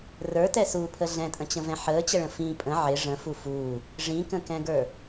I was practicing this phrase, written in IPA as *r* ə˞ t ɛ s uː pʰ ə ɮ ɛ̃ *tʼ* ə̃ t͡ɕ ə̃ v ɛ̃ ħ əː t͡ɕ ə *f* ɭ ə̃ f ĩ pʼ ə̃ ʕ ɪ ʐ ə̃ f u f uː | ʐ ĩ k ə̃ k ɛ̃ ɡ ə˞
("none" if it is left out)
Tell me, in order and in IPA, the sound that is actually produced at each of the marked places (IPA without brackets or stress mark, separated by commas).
r, tʼ, none